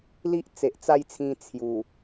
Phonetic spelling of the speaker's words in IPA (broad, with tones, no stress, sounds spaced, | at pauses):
l i˦ ʔ t͡s e˨ ʔ t͡s a˥˧ j t͡sʰ ĩ˧ t͡sʰ j u˨˩